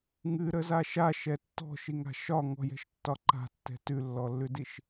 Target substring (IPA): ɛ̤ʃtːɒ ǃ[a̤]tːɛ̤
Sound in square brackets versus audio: correct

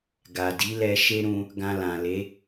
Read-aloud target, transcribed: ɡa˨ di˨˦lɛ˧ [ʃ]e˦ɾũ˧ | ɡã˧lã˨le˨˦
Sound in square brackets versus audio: correct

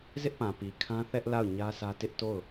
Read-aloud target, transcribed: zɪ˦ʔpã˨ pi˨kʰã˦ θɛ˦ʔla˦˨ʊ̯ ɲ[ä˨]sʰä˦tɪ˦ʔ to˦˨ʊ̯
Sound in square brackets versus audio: incorrect: ä˦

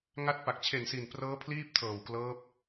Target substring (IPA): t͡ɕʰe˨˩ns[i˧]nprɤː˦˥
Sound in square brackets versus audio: incorrect: i˨˩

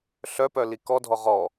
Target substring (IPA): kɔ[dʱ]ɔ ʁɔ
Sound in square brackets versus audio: correct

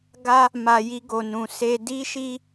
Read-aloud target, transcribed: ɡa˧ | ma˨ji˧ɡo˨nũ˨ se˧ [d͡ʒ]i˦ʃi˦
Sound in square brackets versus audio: incorrect: d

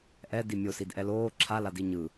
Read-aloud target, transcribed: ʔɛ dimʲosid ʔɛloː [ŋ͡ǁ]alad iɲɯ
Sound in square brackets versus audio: incorrect: ǁʰ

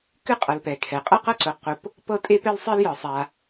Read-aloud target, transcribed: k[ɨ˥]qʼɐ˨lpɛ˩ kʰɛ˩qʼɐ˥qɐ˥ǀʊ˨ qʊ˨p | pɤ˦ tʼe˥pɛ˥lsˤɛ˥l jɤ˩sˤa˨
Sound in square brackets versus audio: correct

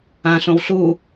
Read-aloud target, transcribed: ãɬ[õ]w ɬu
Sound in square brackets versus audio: correct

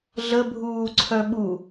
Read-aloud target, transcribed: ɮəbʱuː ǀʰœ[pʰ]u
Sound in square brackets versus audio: incorrect: ɓ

